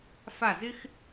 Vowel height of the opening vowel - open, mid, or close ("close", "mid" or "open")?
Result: open